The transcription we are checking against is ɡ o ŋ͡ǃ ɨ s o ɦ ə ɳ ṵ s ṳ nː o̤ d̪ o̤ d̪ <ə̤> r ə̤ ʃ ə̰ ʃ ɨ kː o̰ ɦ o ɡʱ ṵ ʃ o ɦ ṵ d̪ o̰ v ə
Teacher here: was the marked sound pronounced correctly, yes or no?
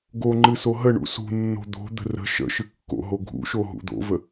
yes